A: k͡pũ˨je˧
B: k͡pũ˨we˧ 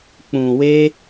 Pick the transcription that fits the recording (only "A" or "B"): B